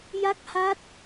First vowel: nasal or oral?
oral